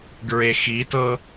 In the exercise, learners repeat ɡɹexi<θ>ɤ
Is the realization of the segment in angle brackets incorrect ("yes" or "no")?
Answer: yes